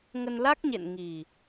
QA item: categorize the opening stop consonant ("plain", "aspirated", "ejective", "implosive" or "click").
plain